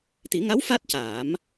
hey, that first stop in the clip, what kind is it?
plain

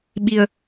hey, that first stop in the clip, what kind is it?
implosive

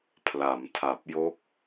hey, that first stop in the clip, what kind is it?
aspirated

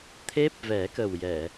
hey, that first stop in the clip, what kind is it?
aspirated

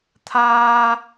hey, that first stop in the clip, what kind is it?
aspirated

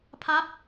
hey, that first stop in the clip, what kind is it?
aspirated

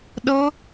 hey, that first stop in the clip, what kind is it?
implosive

